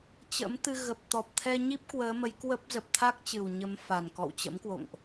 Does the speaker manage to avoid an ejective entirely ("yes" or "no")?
yes